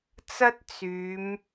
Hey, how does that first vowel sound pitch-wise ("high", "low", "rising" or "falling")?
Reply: high